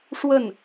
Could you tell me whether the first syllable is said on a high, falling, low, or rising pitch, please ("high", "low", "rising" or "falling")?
falling